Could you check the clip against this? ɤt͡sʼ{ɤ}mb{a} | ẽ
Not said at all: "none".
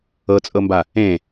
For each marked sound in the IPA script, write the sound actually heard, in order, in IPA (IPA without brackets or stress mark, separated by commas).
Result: ɤ, a